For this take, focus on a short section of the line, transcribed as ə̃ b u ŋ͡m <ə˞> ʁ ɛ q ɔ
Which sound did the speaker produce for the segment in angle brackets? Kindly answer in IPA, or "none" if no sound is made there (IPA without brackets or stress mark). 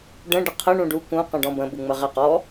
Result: ə